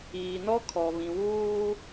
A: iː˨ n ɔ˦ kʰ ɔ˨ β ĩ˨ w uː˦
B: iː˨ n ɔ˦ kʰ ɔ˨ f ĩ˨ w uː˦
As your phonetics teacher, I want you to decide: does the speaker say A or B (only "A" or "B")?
A